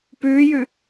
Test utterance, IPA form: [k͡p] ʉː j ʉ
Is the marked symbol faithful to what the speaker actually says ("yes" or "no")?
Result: no